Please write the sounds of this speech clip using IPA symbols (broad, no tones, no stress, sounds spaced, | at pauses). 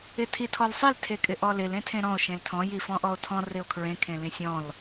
ɪ tʰ i tʰ ɔ l sˤ i l tʰ e kʼ ɪ ʔ ɔ l ɪ l ẽ tʰ ẽ ɾ ɔ̃ o̯ ʃ ẽ l tʰ ɔ̃ j i f ɔ̃ ʔ ɔ o̯ tʰ ɔ̃ r ɪ o̯ kʰ ɹ ẽ kʰ ẽ l ĩ sʲ ɔ̃ l